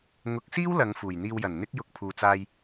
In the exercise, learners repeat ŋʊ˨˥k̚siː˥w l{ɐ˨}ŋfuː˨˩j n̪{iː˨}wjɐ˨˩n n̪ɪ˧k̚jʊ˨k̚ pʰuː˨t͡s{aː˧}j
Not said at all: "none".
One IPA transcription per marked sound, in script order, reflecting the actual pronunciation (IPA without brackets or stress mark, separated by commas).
ɐ˨˧, iː˨, aː˧